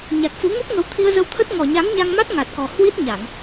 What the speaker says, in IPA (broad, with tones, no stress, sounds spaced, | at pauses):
ɲ a˨˩ k̚ f u˨˦ ŋ u˦˥ p̚ ŋ ə˨˦ w t̪ʰ i˧ ə̯ z ə˧ w t̪ʰ ə˦˥ t̚ ŋ ɔ˨˩ ɲ a˨˦ ŋ ɲ a˧ ŋ m a˦˥ t̚ ŋ a˨˩ t̚ k ɔ˨˩ h w i˦˥ t̚ ɲ a˧˩˨ ŋ